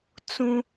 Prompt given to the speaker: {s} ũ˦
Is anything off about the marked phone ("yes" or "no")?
yes